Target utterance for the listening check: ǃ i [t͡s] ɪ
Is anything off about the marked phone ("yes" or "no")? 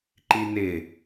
yes